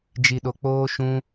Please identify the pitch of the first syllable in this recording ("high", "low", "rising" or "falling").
low